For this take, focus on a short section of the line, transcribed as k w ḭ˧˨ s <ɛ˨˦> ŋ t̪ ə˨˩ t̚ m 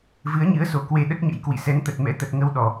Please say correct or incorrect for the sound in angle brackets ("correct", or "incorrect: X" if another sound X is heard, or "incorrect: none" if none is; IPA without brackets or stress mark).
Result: correct